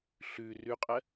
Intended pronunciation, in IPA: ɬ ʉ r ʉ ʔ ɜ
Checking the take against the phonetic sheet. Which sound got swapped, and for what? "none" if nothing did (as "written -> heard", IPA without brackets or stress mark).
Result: ʔ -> qʼ